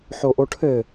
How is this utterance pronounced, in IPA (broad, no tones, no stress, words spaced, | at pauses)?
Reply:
ħoʔoʈʰɘ